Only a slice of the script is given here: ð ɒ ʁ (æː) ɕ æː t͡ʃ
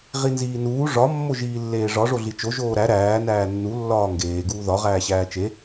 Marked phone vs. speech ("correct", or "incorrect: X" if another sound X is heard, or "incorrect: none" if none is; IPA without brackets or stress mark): correct